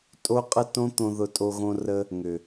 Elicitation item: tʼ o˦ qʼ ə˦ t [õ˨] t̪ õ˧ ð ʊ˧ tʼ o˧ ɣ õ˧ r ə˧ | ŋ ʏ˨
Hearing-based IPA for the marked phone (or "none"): õ˦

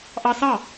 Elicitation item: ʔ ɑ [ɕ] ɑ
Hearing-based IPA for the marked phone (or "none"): s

